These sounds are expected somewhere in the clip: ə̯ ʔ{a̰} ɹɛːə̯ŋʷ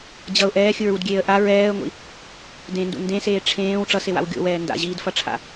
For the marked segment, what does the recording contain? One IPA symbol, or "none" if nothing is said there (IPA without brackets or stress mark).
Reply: a